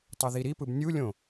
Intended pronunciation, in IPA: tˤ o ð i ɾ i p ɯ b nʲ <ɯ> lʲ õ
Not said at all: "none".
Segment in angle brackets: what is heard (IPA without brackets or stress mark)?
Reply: u